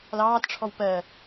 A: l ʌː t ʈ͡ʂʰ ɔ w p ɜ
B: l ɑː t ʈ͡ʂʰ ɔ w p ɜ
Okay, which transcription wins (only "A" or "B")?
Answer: B